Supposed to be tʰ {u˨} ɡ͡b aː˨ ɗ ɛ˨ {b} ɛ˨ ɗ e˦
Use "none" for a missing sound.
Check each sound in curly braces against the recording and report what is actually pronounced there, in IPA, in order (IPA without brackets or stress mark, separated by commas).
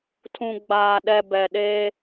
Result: ũ˨, b